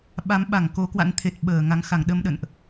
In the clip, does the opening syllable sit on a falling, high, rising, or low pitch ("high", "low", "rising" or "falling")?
rising